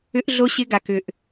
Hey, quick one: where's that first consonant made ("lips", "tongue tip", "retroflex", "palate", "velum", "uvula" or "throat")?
throat